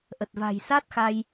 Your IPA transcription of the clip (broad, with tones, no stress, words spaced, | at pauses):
ʔə˨˩t̚va̤˨˩j sa˦˥t̚xa˧j